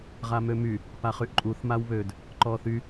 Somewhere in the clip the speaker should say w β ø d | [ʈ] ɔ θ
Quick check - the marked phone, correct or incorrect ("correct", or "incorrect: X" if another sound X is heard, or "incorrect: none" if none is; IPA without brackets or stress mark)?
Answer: incorrect: ǃ